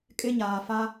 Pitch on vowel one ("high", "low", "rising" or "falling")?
high